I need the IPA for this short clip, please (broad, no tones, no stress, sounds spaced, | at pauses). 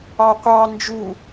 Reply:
ɑ qʷ ɑ n d͡ʒ u